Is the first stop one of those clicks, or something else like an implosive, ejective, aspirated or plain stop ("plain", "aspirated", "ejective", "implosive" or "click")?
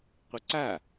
plain